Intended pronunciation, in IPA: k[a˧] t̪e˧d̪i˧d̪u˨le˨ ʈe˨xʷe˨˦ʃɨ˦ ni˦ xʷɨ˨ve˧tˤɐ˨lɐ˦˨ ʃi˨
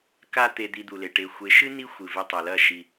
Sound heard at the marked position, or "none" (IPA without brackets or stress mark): a˧